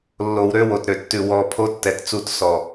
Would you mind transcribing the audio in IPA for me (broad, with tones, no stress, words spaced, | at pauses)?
lːo˨wɾø˦ wo˨tɾø˨tːʉ˨ wɔ˨ pʰo˦tːɛ˨tt͡su˦˨t sɔ˨